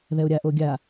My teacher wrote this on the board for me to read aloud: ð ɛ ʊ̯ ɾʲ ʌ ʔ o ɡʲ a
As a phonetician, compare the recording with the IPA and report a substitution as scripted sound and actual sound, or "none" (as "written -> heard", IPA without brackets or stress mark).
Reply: ʌ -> a